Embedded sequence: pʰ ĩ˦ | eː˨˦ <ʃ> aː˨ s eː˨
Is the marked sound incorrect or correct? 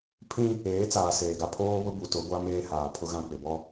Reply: incorrect